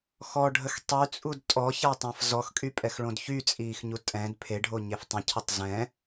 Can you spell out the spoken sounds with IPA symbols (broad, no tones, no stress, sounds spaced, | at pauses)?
x ɔ ɖʱ ə x tˤ y t͡sʼ u d tʼ ɔ ç a tˤ ã f z ɔ x kʼ y pʼ ɛ x ɭ õ d ç y t͡sʼ iː x ɲ u tʼ ɛ̃ d pʰ e ɖʱ o ɲ e f tˤ ə̃ cʰ ə tˤ z ɛ̃